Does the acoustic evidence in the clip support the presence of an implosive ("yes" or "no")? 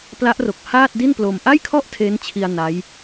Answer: no